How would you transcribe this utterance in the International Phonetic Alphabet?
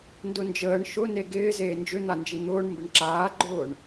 ndʊnd͡ʒəːɳ ʃʊne ɡɪː zeːnd͡ʒʏn̪and͡ʒi n̪ʊːɳ mbɪɳǁaːɡ͡ǃʊːɳ

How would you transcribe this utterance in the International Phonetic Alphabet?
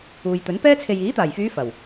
uː˨jt̪ɵ˨˥npɛː˥t͡sʰe˧j iː˨˥t̪aː˨˩jfyː˨˧ fɐ˨˩w

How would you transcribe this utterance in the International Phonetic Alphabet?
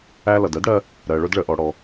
æ˧ lʌ˩dɜ˥dɽɜ˧ | ɾɜ˩ɭʊ˧dɭə˩ʔɔ˩ ɽɔ˩

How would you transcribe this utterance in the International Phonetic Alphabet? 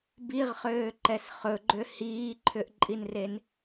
biʁχøːǃɛs χɵɡ͡ǃø hiːǃʰʏʔǃʼinren

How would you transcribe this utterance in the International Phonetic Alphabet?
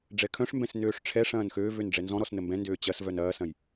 ɖ͡ʐɛkʰœ̃ʂmbɛ̃s nøːʂʈ͡ʂʰɛʂɐ̃ːn xøːvøn ɖ͡ʐɛnzɔ̃ɾɔs nəmbɛ̃ndøː t͡ɕɐsvœn ɐːsɐ̃j

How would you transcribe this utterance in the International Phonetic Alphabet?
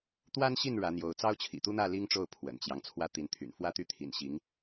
t̪wa˥nɕi˥˩n ɻä˧˥n̪jo˧˥ʊ̯ t͡sɑ˥ʊ̯t͡ɕʰḭ˨˩t̪u˥n̪ä˥˩ li˥ŋʈ͡ʂo˥˩ʊ̯ pʰwə̰˨˩nt͡ɕjɑ˦ŋ t͡sʰwä˥t̪i˧˥nt̪ʰy̰˨˩n fwä˥t̪y˥˩t̪ʰḭ˨˩nɕi˧˥ŋ

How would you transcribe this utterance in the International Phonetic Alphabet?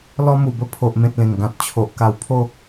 lɔ˧mu˨˩bə˧ pʰo˨ʔmẽ˨t̚ lẽ˨˩ŋɡã˨t̚ t͡ɕʰo˨ʔ ka˧wpʰo˥˧

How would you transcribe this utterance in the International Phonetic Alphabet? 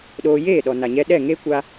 ɗoː˧ jeː˦˨ɗɔ˨ na˨ɲɛ˧ ɗɛ˦˨ŋe˦kʷa˧

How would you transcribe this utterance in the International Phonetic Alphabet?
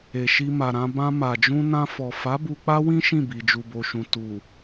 e˨ ʃi˧ma˨ɾã˧ bã˧ ma˨d͡ʒũ˧nã˧fɔ˨ fa˨˦ bu˧k͡pa˦wĩ˦ ʃĩ˦˨bi˨ d͡ʒu˨bo˨ʃũ˨ tu˨

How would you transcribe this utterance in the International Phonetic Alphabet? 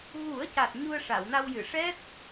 ɣu˨˩˦ə̯ca˨˩t̚ ɲu˧ə̯ʂa˨˩˨wna˧wjɨ˨˩˨ ʂɛ˦˥t̚

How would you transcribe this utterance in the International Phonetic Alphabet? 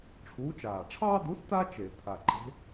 ʈ͡ʂʰuː˨˥t͡ʃaː˨˩ ʈ͡ʂʰɑː˦du˨˥sta˦ t͡ʃe˧˩˧ t̪ʰa˨˩ǃe̤˨˥

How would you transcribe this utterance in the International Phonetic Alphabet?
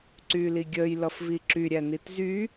ǀyːliɡʲəːj lʌfviǁy ɾʲænitzy

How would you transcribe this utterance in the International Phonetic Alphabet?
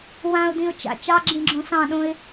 wãʊ̯dĩʊ̯ t͡ʃa̰ t͡ʃɑɡ͡ǁĩɡ͡ǁõ sɑ̃ɗõɪ̯

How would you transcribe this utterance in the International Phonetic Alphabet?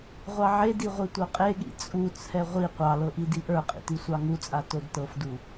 ʁʷɑʕedi ʁʷitʷɤqʼeɠḭ t͡sʼut͡sʰɛ ʁʷi qʷɑlɤ ʔidiʔə˞qʼḭ tisʷɑŋut͡sʼa todtɤfdu

